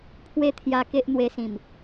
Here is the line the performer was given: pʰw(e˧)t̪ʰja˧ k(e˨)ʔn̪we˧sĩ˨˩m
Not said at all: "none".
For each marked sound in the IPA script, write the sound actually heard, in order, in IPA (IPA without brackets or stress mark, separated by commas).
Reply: e˦, e˦